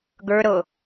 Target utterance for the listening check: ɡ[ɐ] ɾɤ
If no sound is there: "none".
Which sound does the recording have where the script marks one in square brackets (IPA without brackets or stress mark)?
ə˞